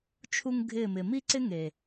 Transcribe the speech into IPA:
t͡ʃʰ u˧ ŋ ɡʱ ɪː˦˨ m ɪ˨ m iː˦ ǀ ɪ˦ ŋ e˨

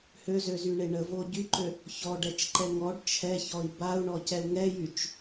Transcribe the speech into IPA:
h ø z ø z y ɳ e ɳ ə v o ɟ y ǃ ø | ç ɔ ɖ ɛ t͡ʃ ǃ ɛ ŋ ɔ ɖ t͡ʃʰ ɛ ç ɔ i̯ b a u̯ ɳ ɔ c ɛ u̯ ŋ ɛ j y t͡ʃ

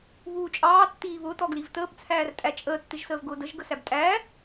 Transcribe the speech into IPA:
β uː t͡ʃʼ ɑː tː iː β ʊː t ɔ ɡ l i v t əː p t͡sʰ æː r tʼ æ t͡ʃʼ əː tː ɪ ʒ s əː v ɡ ʊː d ə ʒ ɡ ə s æ b tʼ æː

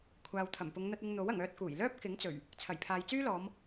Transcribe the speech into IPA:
kʷʰ aː˨ w t̪ʰ ɐ˨˩ m p ʊ˨˧ ŋ n̪ ɐ˧ t̚ ɪ˧ ŋ n̪ o˨˥ w ɐ˨˩ ŋ œː˧ t̚ k uː˨˩ j l œː˥ p̚ k ɪ˨˥ ŋ t͡s ɵ˨˩ ɥ | t͡sʰ ɐ˨˩ j pʰ aː˨ j t͡s yː˥ l ɔː˨˧ m

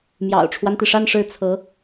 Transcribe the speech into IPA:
m j ɑ̰˨˩ ʊ̯ ʈ͡ʂʰ w a˦ n t̪ i˩ ʂ a˥˧ n ʂ ɻ̩˥˩ t͡sʰ ɤ˧˥

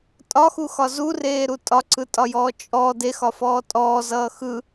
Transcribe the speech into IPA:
tʼ ɒ x u x ɒ z u r eː ɾ u tʼ ɒ ǀ ɯ tʼ ɒ j ɔː t͡ʃʼ ɔ d e x ɒ f ɔː tʼ ɔː z ʌː x ɯ

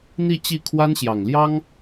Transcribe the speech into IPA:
n̪ i˥˧ t͡ɕ i˥˩ kʰ w a˥ n ɕ j ɑ˨˩ ŋ l j ɑ˥ ŋ

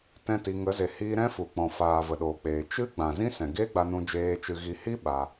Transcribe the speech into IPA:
t ɛ̃˦ t i˧ ŋ ə˨˦ z e˨ h iː˧ ɾ ɛ̃˦ f u˨ k͡p ɔ̃˨ f aː˨ v ə˨ ɗ oː˨ k͡p eː˨ t͡ʃ ɨ˦ ɡ͡b ã˨ z ĩ˦ s ɛ̃˨ ɡ e˦ ɡ͡b a˧ n ũ˧ d͡ʒ eː˧ t͡ʃ ɨ˨ ɣ i˨ h i˦ ɓ a˧

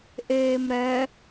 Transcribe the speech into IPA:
ʔ eː m ɾ ɛ

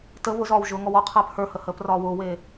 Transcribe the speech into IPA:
t ə β ʊ z ɒː w ʒ ʊː ŋ ɔ w ɔ qʰ ɛː p h ə˞ h ə h əː p r ɒː w ʊː w eː

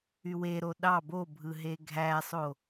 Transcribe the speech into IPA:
y w e ɾ o ɗ ɑ b o bʱ ɯ ɦ e ɡʱ æ sˤ o

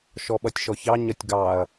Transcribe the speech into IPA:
ʃ ɔ ɓ ʌ tʲ ʃ ɔ ç ɑ ɲ ʌ tʲ ɡ ɑ ɐ̯

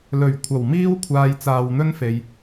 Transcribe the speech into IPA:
l ɵ˨˩ ɥ kʷʰ ɐ˨˩ w m iː˥ w kʷʰ aː˧ j t͡s aː˨ w n̪ ɵ˥ n f e˨ j

